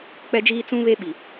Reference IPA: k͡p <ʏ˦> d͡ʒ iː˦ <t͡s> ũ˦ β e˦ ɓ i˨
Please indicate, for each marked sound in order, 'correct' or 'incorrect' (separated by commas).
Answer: incorrect, correct